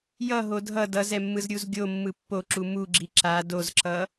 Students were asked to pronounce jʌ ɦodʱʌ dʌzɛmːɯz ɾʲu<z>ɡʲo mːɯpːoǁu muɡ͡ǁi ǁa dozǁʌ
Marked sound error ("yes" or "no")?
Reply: no